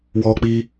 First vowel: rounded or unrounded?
rounded